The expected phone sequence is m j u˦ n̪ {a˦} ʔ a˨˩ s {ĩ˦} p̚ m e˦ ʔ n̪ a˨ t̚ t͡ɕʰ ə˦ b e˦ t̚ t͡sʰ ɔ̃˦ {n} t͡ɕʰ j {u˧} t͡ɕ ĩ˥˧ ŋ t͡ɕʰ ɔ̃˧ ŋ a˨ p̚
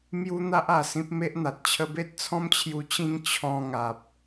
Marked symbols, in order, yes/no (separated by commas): yes, yes, no, yes